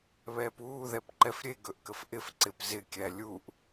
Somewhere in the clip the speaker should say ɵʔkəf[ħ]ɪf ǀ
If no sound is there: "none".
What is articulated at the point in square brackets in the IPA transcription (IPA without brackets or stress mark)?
ʔ